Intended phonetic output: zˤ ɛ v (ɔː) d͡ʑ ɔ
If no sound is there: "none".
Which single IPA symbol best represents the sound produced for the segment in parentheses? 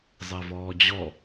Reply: ɔː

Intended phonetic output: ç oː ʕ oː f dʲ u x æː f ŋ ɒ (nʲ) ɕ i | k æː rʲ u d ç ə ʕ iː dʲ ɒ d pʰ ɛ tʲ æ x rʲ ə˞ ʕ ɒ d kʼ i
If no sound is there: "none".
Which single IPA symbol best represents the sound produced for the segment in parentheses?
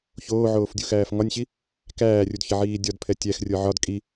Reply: nʲ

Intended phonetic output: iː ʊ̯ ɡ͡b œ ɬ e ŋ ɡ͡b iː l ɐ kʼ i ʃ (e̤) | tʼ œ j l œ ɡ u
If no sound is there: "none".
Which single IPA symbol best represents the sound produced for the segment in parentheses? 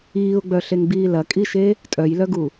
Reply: e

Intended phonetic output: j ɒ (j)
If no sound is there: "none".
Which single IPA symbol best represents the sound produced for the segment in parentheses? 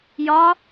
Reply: none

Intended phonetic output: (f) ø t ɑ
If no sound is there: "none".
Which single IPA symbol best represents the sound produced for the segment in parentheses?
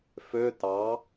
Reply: f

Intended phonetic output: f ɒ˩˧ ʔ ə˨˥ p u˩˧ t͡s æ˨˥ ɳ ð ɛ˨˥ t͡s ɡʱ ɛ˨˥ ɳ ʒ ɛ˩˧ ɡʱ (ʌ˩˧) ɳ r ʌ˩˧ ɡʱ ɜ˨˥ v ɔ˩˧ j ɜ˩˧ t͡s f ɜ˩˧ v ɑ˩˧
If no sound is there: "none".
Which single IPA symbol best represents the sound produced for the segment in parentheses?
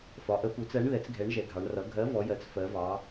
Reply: ɑ˩˧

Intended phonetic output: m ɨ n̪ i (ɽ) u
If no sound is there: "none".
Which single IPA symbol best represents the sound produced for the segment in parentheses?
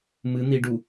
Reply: ɖ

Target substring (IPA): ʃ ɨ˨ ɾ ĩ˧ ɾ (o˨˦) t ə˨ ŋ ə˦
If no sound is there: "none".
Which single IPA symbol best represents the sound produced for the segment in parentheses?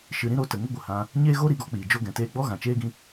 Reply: o˨˦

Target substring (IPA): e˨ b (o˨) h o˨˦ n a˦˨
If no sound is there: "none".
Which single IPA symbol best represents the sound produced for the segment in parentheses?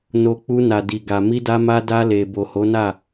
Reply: o˨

